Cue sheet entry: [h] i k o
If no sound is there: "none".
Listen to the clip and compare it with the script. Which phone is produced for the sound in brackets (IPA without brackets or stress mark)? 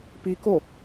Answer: p